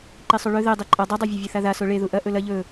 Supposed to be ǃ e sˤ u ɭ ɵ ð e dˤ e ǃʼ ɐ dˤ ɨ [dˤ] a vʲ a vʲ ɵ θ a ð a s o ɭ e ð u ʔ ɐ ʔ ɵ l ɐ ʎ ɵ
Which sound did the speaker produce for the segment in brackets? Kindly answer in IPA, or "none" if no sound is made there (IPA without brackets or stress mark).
dˤ